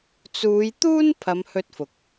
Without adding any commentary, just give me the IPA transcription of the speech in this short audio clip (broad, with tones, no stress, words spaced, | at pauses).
t͡suː˨˧jt̪uː˥n pʰɐ˨˧mhɵ˧t̚fʊ˨k̚